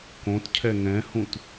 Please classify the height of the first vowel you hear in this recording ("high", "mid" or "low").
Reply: mid